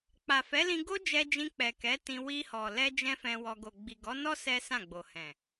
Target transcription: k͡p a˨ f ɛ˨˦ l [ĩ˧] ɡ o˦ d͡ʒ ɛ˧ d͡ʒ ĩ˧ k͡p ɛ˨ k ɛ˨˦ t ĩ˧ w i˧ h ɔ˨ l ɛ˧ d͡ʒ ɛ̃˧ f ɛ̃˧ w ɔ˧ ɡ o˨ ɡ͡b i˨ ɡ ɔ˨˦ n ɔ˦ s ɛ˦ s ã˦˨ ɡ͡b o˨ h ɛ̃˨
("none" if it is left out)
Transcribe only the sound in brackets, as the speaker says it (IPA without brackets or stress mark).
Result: ĩ˧